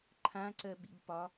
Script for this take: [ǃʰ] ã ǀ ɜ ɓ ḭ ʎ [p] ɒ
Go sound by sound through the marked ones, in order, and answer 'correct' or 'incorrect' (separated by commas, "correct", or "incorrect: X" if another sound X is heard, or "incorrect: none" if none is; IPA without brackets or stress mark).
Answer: correct, correct